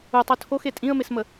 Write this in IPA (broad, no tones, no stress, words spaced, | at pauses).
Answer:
utˤu tʰoxe tʼĩə̯mesmə